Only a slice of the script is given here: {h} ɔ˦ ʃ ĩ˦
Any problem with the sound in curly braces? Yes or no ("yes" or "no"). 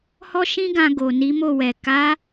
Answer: no